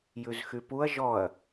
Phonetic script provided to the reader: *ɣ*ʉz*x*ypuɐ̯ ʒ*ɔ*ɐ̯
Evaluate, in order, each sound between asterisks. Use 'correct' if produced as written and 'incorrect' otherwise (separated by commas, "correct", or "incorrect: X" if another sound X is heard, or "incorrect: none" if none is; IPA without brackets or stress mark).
incorrect: j, correct, correct